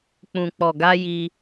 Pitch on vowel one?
low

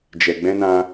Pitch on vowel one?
low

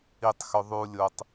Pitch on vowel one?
low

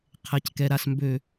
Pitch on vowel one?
low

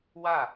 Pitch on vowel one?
falling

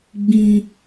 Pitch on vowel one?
high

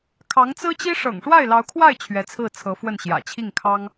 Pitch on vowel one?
rising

